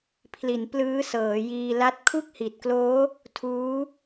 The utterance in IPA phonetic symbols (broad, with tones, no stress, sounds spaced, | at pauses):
pʰ l i˩˦ n p l ɯː˦˥ s ɤː˩˦ j iː˧ l a˦˥ t̚ kʰ u˥˩ k̚ h i˨˩ t̚ k l oː˦˥ | tʰ uː˦˥